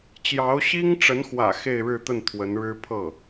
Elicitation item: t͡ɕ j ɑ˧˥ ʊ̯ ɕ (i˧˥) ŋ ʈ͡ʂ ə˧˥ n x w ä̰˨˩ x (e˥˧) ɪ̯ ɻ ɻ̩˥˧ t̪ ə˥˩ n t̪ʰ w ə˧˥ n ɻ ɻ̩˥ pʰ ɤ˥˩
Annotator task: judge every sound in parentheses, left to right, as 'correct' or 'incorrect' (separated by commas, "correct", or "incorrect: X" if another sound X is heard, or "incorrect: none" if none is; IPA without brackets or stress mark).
incorrect: i˥, correct